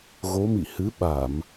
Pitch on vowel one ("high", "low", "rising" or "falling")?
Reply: rising